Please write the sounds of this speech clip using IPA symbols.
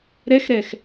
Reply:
ɾɛxɾɛx

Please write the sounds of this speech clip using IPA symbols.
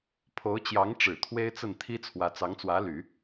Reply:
pʰo˧˥ʊ̯t͡ɕjɑ˧˥ŋʈ͡ʂɻ̩˨˩ t̪ʰwe˥ɪ̯t͡sə˥˩n t̪ʰi˥t͡sʰwä˧˥ t͡sɑ˧˥ŋt͡swä˧˥ly˨˩˦

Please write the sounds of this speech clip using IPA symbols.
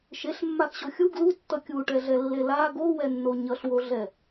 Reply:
ʃeɬmːaxɕo xʲu ɡlutːʌ kʲuʈɛɮɛlːe la ɡowɛnːo ɲʌɬwoɮɛ

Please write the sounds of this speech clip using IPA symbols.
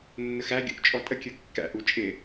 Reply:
nːəxæɡʲṵʔ t͡ʃʼɔtʼəkʲə˞ kːæ̰ʔu t͡ʃʼɪ

